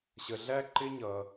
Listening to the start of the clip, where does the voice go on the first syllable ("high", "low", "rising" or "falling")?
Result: low